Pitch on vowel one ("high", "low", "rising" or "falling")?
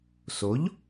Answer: rising